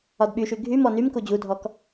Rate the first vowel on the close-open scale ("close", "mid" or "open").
open